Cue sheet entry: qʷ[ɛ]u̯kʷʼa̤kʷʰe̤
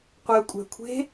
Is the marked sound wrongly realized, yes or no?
no